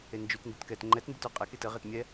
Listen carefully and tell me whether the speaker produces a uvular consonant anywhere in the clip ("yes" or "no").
yes